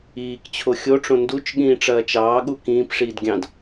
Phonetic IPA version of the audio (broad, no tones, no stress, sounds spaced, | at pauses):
iː k t͡ɕʰ o xʲ o ʈ͡ʂ õ n d u t͡ʃ ɠ ĩː ʈ͡ʂ ɐː t͡ʃ ɑː ɠ u k ĩː p ʂ iː d ɡʲ ɑ̃ d